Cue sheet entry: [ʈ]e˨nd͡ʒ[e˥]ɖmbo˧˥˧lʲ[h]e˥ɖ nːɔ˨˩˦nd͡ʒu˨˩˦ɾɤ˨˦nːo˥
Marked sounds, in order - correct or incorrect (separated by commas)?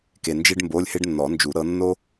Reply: incorrect, correct, correct